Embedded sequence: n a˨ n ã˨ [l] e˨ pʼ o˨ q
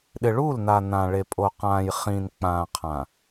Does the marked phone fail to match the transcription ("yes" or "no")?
yes